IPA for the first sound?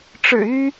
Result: ʈ͡ʂ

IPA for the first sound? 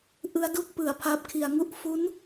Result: ʔ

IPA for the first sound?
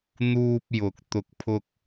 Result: n̪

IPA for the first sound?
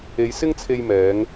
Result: e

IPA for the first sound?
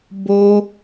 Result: b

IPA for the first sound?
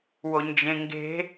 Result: w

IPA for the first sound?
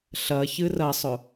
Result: ɬ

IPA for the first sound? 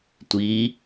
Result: tʷ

